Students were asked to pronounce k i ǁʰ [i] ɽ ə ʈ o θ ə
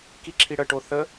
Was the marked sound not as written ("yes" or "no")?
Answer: no